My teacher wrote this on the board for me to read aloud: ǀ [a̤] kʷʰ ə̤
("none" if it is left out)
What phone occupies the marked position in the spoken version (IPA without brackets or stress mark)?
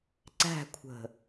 æ̤